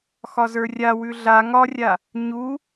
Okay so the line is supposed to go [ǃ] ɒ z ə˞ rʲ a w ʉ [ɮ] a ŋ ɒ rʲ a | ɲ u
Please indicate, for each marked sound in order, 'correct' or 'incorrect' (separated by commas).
incorrect, correct